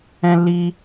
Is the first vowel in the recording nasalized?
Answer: yes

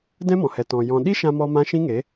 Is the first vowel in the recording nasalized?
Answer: yes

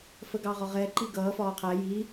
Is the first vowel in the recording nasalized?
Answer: no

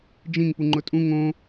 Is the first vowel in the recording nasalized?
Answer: yes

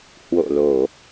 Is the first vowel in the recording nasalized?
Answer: no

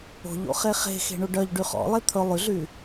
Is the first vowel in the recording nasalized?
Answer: no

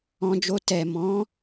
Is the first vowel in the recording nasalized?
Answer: yes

